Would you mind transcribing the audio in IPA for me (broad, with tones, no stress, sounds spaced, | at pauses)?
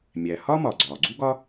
mʲ æ˩ h ɒ˥ m ɒ˩ ɡ͡ǀ ɒː˩ ɡ͡ǀ u˥ ɡ ɒ˥